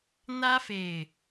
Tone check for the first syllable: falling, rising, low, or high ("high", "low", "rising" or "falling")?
high